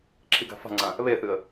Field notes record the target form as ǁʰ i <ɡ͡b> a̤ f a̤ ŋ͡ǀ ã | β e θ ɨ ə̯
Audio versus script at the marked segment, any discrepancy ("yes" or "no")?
yes